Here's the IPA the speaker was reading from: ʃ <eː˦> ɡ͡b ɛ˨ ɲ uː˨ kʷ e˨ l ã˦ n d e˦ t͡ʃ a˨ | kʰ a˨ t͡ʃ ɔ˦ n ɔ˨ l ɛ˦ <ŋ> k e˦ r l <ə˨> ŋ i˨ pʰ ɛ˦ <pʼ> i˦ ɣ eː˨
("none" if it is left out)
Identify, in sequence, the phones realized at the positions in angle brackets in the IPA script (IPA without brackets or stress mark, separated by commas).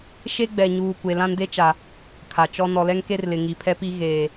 e˦, ŋ, ɪ˨, p